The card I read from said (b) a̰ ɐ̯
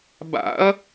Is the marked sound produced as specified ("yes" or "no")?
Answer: yes